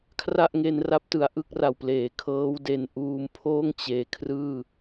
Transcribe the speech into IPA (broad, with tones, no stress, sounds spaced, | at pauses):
kʰ r a˥˩ ʔ ŋ e˧ n r a˦˥ p̚ t ɯ˨˩ a̯ ʔ ɯ˥˩ k̚ r a˨˩ w p l eː˩˦ kʰ ɤː˦˥ w d e˧ n ʔ uː˧ m pʰ oː˥˩ ŋ t͡ɕ eː˨˩ kʰ r ɯː˥˩